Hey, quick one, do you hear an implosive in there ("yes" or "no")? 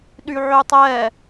yes